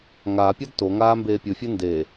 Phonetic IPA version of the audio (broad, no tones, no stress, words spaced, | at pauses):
ŋaːpʲad toŋaː mbeːpʲɯfʲe ndeː